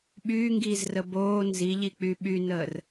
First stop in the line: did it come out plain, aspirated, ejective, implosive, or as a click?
implosive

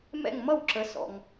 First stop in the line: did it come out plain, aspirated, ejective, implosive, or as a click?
click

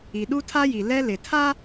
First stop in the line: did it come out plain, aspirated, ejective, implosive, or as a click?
implosive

